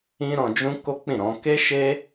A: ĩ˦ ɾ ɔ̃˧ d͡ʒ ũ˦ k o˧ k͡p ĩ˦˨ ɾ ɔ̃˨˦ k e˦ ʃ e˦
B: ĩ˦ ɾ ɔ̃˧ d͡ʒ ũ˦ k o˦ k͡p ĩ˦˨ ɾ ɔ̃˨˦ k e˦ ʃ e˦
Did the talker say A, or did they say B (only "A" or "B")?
B